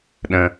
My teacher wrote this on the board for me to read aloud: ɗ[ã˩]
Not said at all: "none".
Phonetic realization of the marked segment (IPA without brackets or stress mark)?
ə̃˩